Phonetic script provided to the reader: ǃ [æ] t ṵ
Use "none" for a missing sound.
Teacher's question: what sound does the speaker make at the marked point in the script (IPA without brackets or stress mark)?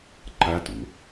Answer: a